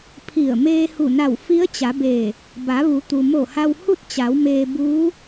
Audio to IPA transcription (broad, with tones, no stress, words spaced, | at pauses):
pʰi˧˩ə̯ meː˧hu˧˩na˧˩w fi˧˥ə̯t͡ɕa˩˧beː˧˩ | ba˩˧ʋu˩˧ t̪u˩mo˧˩ha˧w hu˥˨t̚t͡ɕa˩˧wmeː˧ buː˧˥